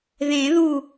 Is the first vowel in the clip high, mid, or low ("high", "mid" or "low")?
mid